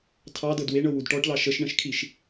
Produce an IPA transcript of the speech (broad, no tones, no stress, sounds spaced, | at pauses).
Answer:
tʰ ɑ d ɤ d w e ɳ ɤ w u d ʈ ɔ ʈ l ɑ ʃ ə ʃ ɳ ə̃ ʃ kʰ i ʃ